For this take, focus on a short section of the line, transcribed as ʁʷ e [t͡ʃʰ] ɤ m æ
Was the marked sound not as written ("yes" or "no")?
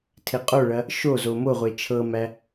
no